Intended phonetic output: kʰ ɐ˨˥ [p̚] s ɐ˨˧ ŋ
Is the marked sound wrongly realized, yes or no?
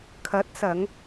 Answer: yes